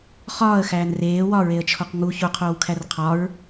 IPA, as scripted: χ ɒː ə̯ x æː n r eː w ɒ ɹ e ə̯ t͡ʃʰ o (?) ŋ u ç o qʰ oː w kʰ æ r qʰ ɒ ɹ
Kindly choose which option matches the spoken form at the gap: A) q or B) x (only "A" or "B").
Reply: A